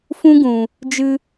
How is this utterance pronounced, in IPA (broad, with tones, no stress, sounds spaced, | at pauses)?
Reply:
f ũ˦ ɡ ũ˨ | d͡ʒ ɨ˧